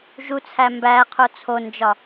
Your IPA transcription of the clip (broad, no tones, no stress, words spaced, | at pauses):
ʒut͡sʰæ mbæqʰo t͡sʰond͡ʒɒ